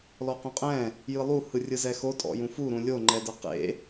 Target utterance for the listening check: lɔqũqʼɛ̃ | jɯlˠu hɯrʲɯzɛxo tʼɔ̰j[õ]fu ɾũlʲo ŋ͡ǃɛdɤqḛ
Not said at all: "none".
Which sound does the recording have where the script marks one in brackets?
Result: ũ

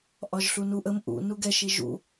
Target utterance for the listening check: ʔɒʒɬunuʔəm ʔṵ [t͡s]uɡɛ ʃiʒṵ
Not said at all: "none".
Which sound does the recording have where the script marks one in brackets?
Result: n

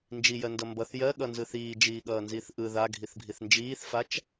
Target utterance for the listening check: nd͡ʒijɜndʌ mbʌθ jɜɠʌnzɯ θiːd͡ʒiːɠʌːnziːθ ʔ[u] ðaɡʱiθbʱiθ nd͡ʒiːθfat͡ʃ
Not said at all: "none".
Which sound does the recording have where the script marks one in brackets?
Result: ɯ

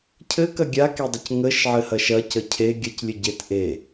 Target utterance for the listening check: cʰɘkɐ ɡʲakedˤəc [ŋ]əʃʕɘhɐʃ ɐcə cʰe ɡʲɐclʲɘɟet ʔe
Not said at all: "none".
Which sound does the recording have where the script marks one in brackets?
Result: ŋ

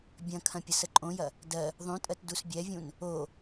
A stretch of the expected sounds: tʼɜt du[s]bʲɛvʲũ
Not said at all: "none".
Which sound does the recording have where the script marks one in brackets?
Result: s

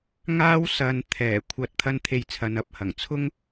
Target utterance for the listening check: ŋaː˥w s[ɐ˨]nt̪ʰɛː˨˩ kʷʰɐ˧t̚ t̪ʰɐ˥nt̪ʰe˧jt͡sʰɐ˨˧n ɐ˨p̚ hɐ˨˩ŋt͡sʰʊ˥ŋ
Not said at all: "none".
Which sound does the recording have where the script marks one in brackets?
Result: ɐ˨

